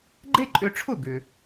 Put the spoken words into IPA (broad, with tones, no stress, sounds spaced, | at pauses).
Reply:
ɡ͡ǃ e˥ ǃʼ ʏ˧ ʈ͡ʂʰ ʊ˥˩ ɡ ʏ˩